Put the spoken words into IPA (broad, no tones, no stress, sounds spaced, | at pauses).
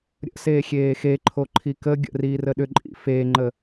ɾʲ ə̰ s eː xʲ eː x e ǃʰ o ǃʰ i k ə ɡʲ ə̰ r iː r ə ɗ ʏ ǃʼ ḭ f eː ŋ͡ǃ ə